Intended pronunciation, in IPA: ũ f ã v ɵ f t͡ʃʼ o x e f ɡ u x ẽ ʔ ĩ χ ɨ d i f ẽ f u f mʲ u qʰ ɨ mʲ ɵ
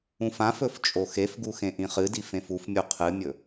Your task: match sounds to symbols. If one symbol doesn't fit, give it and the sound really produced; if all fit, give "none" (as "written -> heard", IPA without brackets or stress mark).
v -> f